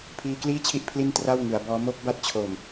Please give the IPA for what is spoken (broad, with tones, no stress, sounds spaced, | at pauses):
pʰ iː˧ k l iː˥˩ t͡ɕʰ i˥˩ ʔ pʰ l i˥˩ n t r a˥˩ w ŋ ɯ˩˦ a̯ b ɔː˦˥ m o˦˥ k̚ b a˦˥ t̚ t͡ɕʰ oː˨˩ m